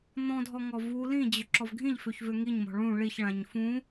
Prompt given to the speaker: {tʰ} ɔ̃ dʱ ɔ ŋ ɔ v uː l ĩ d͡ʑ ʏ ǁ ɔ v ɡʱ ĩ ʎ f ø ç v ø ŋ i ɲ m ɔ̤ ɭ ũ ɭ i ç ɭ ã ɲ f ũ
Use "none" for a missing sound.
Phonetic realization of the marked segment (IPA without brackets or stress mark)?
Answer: n̪